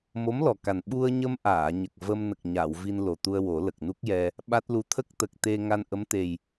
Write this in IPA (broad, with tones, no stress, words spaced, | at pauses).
mo˧˥mlɔ˨˩ka˨˩n ɓu˧ə̯ɲə˧mʔaː˨˩˨ɲə˨˩k̚ və˧mnə˨˩k̚ɲa˨˩˨w vi˧nlo˨˩t̪u˧ə̯ wo˨˩˦lə˨˩k̚ nu˦˥k̚jɛ˧ | ɓa˦˥t̚lu˧˥ t̪ʰə˦˥k̚t̪ə˨˩k̚t̪e˧ ŋa˧nʔə˧˥mt̪e˨˩j